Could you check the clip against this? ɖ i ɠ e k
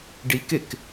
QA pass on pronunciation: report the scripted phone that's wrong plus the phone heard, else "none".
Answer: ɠ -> k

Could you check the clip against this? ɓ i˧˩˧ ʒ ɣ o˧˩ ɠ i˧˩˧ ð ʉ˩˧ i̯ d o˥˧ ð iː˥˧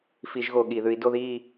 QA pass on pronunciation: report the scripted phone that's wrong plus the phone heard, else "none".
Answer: ɓ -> f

